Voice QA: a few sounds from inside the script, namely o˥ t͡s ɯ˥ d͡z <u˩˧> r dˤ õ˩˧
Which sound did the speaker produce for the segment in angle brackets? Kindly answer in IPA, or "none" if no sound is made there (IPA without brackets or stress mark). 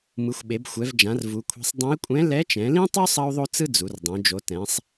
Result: u˩˧